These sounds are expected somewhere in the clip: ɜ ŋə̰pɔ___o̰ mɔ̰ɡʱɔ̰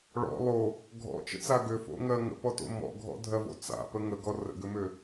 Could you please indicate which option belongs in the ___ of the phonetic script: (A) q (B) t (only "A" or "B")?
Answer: B